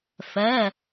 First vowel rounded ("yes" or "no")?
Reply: no